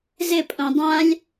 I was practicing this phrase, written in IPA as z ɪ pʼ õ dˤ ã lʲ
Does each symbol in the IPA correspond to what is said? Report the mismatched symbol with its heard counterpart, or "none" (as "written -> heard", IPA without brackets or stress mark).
none